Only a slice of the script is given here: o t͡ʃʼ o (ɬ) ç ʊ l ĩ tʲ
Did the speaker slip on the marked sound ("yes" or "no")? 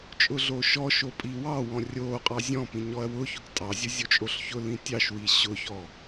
no